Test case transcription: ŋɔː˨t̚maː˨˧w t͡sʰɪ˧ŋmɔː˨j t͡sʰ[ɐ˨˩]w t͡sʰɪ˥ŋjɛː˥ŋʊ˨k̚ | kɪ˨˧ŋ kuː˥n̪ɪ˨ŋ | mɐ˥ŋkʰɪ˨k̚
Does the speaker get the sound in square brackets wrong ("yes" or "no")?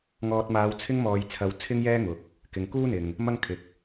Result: yes